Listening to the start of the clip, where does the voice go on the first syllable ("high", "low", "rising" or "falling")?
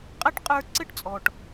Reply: high